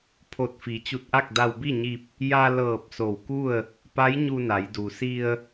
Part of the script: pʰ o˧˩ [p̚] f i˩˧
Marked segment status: incorrect: t̚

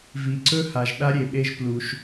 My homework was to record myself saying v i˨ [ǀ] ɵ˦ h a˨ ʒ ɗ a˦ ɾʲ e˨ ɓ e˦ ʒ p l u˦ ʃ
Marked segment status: correct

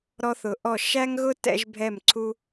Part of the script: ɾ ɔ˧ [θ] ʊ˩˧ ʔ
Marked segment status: correct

